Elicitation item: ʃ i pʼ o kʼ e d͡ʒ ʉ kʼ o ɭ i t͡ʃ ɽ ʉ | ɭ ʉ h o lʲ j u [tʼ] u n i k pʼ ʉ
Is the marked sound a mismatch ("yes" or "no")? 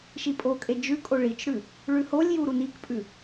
yes